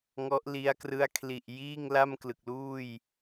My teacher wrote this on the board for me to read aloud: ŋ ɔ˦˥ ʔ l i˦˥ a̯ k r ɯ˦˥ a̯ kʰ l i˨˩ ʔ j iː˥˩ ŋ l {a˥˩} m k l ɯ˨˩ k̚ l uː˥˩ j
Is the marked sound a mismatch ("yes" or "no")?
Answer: no